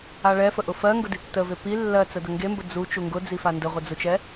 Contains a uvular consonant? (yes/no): yes